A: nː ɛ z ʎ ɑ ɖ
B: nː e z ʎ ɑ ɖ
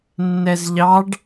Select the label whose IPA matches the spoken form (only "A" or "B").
A